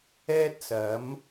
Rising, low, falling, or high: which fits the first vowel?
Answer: high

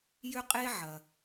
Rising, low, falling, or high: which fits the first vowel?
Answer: high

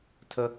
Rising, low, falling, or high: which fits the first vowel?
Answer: high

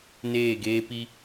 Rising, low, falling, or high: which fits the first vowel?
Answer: falling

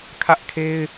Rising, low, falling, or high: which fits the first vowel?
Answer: high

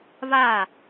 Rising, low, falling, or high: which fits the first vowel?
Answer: falling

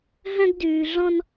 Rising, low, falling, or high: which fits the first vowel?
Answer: high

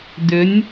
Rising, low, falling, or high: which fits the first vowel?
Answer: rising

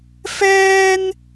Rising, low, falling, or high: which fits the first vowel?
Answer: high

